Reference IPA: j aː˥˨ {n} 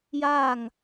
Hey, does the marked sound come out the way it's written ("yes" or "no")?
no